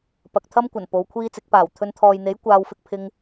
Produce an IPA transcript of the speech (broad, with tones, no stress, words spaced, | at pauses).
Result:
pɐ˨k̚t̪ʰɐ˥mkʷɐ˨˩n po˨˧wkʷʰiː˥t͡sɪ˨˥k̚paː˨˩w t̪ʰɵ˧nt̪ʰɔː˨jn̪e˨˥j kʷaː˧w fɪ˥k̚pʰɪ˥ŋ